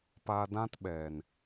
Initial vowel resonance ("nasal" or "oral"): oral